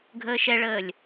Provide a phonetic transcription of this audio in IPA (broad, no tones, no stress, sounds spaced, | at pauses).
ɡʱ əː ʃ ɛ ɭ əː lʲ